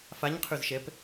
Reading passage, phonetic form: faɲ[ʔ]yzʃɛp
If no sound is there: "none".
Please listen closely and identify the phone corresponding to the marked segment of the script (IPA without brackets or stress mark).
qʰ